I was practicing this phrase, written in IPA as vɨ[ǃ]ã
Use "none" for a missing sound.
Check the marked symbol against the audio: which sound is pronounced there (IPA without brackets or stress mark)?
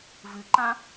ǃ